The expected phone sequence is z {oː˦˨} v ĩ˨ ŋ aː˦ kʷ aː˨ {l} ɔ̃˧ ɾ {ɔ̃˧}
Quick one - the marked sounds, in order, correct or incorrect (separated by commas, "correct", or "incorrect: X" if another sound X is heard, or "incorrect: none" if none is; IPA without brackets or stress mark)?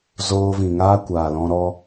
incorrect: oː˧, correct, incorrect: ɔ˧